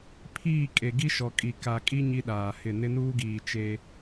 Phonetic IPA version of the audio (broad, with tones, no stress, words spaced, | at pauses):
pʰiː˦˨kʼe˨ ɡi˦ʃɔ˨kʼi˨ ka˨kʼi˦ ɲi˦ɗaː˨hɪ˦˨ nɪ˦nuː˦ɡiː˨ t͡ʃe˦